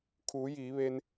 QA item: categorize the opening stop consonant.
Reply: aspirated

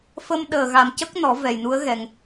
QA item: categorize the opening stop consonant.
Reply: implosive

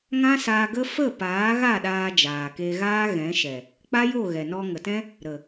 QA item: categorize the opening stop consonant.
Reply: plain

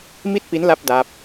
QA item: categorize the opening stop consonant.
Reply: plain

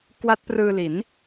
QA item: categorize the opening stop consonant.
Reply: plain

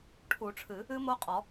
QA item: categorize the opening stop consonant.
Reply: aspirated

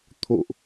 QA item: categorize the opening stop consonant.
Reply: aspirated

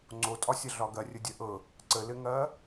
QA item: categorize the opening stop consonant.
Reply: click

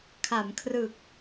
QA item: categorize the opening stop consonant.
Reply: aspirated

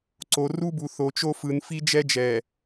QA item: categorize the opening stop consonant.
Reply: click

